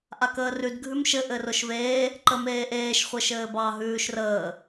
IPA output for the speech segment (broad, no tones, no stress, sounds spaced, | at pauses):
ʔ a k əː r ʉ d ɡʱ ʉ m ʃ ɘ ʔ ɘ r ʊ ʃ v eː | ǃ ə m eː ʔ eː ʃ χʷ ɘ ʃ ɘː b ɑ ɦ ʉː ʃ r əː